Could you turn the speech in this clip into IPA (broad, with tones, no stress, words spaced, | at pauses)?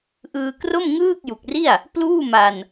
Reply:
ʔɯː˧kro˥˩m ŋɯː˥˩k̚ju˨˩k̚ri˥˩a̯ | pluː˥˩ma˧n